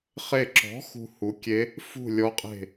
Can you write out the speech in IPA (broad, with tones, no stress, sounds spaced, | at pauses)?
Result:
χ e˥˩ ǁ ɔ̤˩˥ x ṳ˨ h u˩˥ kʲ e˧˥ | f ṳ˥˩ lʲ ɔ˧˥ qʼ e̤˥˩